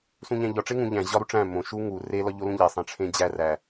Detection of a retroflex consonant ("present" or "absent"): present